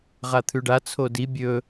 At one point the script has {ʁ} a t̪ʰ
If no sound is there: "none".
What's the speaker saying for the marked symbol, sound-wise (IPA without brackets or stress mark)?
ʁ